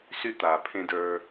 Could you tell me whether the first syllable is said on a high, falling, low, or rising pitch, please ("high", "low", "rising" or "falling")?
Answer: high